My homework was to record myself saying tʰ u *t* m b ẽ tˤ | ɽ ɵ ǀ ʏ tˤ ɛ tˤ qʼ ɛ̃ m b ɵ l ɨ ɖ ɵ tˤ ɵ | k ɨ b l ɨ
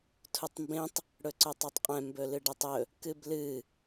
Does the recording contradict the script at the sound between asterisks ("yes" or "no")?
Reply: yes